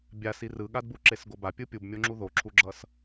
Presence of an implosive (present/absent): present